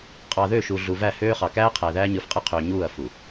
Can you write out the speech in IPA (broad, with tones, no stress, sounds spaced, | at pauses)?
qʼ ɑ˨ ð ø˦˨ ʃ u˨ ɮ u˨ v æ˦˨ h øː˦ χ ɑ˨ k æː˦ qʰ æ˨ ð æː˦ ɲ ɯ˨ f qʼ ɯ˦ qʰ øː˨ ɲ uː˦˨ ɐ̯ f u˨